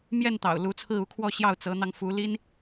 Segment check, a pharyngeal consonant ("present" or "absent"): absent